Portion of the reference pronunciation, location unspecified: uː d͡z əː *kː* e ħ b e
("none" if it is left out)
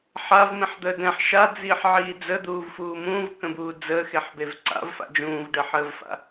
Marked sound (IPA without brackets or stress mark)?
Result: x